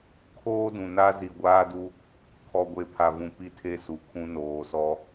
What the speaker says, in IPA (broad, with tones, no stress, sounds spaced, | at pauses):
kʰ oː˦ d ũ˨ n a˦ z i˨ ɡʷ aː˦ d u˦ | kʰ ɔ˨ ɡʷ e˨˦ pʰ a˨ v ũ˨ p i˦ tʰ e˦ s u˨ kʰ ũ˦ n oː˨ s ɔ˦